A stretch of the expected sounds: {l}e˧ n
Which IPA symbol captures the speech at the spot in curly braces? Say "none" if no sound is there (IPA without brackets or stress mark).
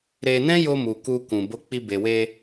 ɾ